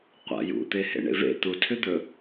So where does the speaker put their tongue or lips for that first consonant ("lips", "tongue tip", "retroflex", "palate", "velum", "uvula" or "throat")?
uvula